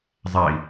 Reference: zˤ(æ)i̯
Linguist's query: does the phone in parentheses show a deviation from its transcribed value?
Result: no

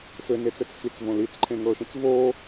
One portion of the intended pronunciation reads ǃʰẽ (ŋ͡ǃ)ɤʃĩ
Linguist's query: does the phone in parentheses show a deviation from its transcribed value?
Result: yes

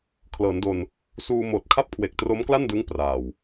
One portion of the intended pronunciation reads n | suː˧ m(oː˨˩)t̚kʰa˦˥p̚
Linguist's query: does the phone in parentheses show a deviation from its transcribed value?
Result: no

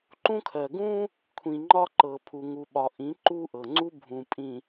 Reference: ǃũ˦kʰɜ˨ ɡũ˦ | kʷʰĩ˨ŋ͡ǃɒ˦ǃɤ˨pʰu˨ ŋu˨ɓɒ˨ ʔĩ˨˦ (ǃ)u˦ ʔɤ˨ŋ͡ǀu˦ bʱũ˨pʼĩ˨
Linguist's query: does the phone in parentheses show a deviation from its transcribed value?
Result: no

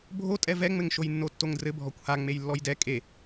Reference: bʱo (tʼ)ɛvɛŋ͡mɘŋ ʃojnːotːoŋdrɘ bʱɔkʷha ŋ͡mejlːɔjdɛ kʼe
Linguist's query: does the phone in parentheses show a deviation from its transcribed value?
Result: no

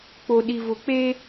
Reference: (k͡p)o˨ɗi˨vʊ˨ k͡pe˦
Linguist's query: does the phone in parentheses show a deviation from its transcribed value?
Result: no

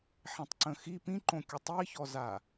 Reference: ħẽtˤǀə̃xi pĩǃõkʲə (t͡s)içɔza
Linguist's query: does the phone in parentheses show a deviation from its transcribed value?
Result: yes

